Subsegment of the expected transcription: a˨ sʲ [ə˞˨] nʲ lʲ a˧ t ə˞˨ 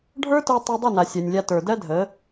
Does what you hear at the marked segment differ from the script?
yes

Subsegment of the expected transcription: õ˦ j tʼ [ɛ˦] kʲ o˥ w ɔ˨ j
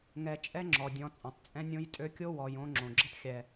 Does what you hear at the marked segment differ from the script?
yes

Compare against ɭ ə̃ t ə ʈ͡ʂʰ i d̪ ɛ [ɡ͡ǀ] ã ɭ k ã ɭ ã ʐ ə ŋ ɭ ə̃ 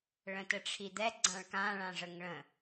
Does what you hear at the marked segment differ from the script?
no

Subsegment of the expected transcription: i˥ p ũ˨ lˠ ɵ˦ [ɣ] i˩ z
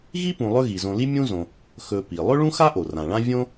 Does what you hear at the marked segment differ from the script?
no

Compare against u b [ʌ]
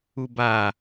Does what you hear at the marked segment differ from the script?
yes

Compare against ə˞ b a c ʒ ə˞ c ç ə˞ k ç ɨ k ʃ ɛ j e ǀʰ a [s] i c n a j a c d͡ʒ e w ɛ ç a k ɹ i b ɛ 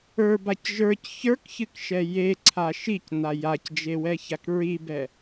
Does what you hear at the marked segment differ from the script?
yes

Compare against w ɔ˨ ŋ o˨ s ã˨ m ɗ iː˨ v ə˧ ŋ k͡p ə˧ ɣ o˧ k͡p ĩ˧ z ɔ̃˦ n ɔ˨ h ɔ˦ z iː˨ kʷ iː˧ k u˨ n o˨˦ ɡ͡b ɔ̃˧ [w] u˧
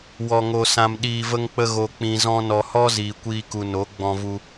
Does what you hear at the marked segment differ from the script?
yes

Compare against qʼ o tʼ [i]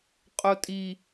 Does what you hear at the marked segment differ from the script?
no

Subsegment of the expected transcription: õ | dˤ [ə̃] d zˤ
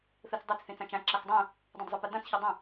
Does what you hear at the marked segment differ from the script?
yes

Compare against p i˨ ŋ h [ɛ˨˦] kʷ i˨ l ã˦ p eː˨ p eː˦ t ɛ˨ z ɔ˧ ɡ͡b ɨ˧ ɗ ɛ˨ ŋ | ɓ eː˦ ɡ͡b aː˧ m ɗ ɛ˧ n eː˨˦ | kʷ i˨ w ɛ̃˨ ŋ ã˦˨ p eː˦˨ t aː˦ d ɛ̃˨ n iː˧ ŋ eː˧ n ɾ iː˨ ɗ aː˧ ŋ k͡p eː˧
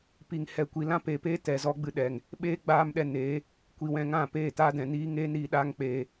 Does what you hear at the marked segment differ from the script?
yes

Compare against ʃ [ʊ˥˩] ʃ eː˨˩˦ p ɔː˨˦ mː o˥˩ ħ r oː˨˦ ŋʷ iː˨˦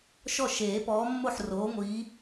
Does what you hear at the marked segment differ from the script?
yes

